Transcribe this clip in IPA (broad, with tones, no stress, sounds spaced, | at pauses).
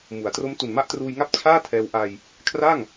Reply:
m u˩˦ a̯ t r o˦˥ m t u˨˩ n m a˥˩ ʔ t r uː˧ j ŋ a˥˩ p̚ t͡ɕʰ aː˥˩ tʰ ɛː˧ w ʔ a˧ j | kʰ r a˥˩ ŋ